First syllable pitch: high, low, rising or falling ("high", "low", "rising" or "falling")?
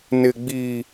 low